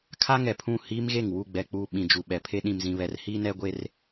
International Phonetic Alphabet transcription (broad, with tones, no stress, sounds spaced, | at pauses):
kʰ a˦ ŋ ɛ˨ pʰ ũ˦˨ h iː˦ m ɣ e˦˨ ŋ w u˦˨ ɡ͡b ɛ˨ k͡p uː˨ ɓ ĩ˨ d͡ʒ u˨ ɓ ɛ˨ pʰ e˦ ɗ ĩ˨ m z ĩ˨ β ɛ˨ r h iː˦ n ɛ˦ ɡʷ e˦ r